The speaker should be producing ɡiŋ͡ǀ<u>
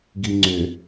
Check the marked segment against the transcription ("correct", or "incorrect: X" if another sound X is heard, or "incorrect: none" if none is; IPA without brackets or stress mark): incorrect: ʏ